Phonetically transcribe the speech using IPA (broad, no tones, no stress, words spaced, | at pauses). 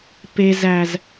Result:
pe zæz